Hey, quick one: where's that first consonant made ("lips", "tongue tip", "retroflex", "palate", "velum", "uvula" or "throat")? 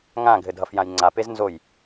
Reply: velum